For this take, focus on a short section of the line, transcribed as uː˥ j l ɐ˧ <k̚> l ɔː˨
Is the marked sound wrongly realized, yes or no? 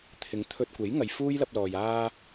yes